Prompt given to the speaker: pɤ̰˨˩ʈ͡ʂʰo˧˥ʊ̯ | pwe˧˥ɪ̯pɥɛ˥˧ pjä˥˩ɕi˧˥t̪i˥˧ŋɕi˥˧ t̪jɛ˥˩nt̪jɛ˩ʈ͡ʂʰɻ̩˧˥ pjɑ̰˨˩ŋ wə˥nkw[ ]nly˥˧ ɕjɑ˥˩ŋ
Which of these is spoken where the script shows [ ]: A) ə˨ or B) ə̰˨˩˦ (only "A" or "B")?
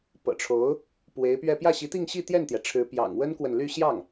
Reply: A